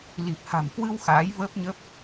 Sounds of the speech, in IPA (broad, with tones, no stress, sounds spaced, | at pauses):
l i˨˩ p̚ h a̤˨˩ m k w ɨ˧ w x aː˨˦ j v əː˦˥ p̚ ɲ ə˦˥ p̚